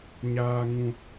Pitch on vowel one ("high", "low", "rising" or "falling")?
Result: high